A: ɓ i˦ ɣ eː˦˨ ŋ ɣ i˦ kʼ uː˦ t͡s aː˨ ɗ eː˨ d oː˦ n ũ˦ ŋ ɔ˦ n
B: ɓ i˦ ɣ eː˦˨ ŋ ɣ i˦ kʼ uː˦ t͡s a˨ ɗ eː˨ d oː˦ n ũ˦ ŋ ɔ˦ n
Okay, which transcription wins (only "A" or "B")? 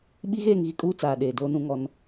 A